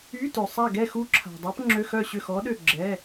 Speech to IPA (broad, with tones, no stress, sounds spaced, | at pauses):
y˧˥˧ t ø˨ sˤ a˦˨ ɡ ɛ˦˨ x u˧˥ ǁʰ a̤˨ dˤ a˧˥ p ŋ͡ǁ ø˧˥˧ x œ˦˨ ɕ ø˦˨ x ɔ˧˥ ɗ ø˦˨ ɡ͡ǁ ɛ˧˥˧